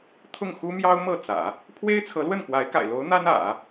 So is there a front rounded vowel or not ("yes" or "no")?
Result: no